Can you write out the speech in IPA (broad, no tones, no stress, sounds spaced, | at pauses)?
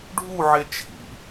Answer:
ɖʱ u ʕ e t͡ʃʰ ḭ